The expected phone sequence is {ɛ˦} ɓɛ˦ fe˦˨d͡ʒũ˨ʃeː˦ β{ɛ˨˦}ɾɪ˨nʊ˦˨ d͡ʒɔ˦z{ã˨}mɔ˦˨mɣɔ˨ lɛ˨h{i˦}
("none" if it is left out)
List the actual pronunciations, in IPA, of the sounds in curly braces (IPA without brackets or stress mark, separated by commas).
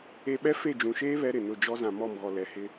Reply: e˦, ɛ˦, ã˨, ɪ˦